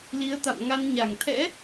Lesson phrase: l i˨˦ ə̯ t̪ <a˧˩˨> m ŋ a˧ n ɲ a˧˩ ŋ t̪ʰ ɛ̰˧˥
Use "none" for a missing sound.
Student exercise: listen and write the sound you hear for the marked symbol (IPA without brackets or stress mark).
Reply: a̰˧˨